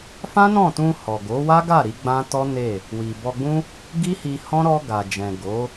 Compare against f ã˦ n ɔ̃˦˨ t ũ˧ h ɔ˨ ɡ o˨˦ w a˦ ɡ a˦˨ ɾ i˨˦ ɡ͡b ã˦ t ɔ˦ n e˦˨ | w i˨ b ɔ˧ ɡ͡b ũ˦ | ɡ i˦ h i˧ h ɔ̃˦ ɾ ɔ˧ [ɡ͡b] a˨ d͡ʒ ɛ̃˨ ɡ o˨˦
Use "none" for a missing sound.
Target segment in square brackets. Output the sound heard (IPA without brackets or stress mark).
ɡ